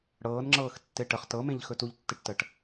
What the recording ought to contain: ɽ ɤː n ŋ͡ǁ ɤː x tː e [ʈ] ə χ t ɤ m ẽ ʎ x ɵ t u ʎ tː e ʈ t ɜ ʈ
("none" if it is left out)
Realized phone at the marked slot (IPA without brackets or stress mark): ʈ